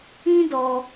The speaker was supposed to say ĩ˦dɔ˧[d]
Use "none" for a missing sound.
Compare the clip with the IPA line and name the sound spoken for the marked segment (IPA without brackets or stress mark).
none